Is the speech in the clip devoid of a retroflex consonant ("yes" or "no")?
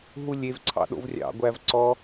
yes